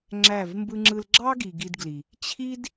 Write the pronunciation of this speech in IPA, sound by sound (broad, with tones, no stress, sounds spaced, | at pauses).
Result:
ŋ͡ǁ æ˦˨ v m b ɯ˧ ŋ͡ǁ ɯ˧ l ɡ͡ǁ ɑ˦ ɡ i˨ ɡ i˧ d ɡ l i˨ | t͡ɕʰ i˦ d